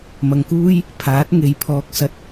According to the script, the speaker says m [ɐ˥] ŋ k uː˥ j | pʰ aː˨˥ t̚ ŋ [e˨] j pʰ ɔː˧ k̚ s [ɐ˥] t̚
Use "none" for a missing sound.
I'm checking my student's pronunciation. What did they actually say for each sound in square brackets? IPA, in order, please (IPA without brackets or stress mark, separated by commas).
ɐ˨, e˨, ɐ˧